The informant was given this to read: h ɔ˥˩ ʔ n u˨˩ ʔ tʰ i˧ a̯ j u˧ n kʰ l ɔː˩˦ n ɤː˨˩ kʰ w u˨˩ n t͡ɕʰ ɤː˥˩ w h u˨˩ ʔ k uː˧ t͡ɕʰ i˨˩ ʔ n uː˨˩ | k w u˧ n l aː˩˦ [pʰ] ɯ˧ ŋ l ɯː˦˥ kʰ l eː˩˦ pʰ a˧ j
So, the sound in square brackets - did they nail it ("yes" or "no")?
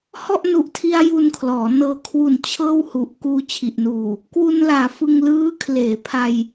no